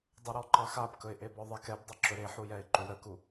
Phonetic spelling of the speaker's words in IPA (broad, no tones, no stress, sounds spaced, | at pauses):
dˤ u ɾ ɔ ǃ ɑ x a b k ɵ ɪ̯ ʔ e b ɔ ðˤ e k ɛ b dˤ a ǁ ɵ ɾ e ħ u j ɛ ɪ̯ ǃ u ɾ ə k u